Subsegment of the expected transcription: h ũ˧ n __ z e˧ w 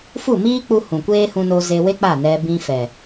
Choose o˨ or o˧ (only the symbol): o˧